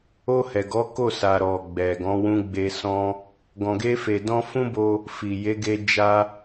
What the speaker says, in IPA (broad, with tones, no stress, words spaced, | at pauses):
o˧hɛ˨ɡɔ˨˦ ko˦˨ sa˨ ɾɔ˨ɡ͡bɛ˨ɡɔ̃˨˦ wũ˧ɡ͡be˧sɔ̃˦ | ɡɔ̃˨ɡe˧ fe˨dɔ̃˧fũ˦ bo˦ | fi˨ je˨˦ ɡe˧ d͡ʒa˧